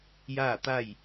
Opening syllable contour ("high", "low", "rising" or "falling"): falling